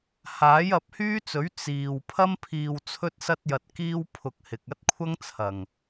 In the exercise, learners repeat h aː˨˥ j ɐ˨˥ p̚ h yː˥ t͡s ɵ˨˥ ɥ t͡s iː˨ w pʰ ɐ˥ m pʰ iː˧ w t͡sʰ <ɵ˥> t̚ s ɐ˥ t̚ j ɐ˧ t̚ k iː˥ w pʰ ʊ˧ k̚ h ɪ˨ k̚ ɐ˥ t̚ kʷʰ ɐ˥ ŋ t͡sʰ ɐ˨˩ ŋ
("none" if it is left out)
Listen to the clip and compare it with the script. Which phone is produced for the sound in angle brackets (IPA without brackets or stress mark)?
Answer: ɵ˥